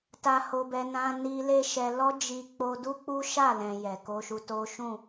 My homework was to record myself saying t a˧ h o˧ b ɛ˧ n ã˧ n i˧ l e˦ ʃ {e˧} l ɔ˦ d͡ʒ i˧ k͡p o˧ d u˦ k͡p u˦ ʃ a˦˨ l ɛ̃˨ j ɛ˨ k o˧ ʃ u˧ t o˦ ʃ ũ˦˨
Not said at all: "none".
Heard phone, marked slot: ɛ˧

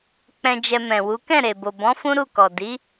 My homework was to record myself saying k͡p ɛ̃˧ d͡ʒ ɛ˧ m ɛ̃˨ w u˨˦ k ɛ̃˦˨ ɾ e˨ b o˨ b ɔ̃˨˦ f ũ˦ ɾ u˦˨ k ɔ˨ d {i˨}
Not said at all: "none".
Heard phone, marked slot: i˨˦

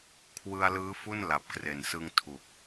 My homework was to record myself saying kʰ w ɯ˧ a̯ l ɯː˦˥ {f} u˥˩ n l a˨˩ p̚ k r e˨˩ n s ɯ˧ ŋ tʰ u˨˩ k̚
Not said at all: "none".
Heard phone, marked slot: f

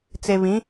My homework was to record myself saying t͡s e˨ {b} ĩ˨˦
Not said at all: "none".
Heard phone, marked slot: β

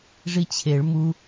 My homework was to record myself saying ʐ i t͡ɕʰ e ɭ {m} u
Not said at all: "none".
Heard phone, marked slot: m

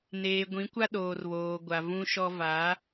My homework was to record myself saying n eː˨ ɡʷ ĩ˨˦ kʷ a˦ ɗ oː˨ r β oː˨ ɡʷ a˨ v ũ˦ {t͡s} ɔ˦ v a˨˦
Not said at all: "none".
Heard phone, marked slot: ʃ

